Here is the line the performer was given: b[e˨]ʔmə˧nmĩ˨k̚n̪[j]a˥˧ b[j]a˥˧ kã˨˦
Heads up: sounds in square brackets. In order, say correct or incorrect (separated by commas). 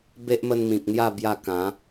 incorrect, correct, correct